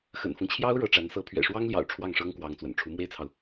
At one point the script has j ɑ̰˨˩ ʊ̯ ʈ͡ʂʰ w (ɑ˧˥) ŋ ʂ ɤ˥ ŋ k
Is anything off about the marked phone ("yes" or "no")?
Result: yes